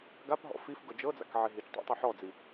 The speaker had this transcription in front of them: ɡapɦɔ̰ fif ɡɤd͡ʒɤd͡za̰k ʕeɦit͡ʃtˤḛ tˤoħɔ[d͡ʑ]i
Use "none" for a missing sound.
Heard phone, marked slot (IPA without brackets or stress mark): d͡z